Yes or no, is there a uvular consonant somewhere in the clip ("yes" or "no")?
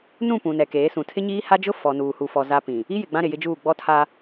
no